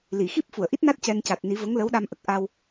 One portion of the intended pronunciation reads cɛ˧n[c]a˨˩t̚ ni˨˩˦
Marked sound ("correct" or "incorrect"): correct